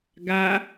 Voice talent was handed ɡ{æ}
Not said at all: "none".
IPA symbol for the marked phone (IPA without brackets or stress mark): a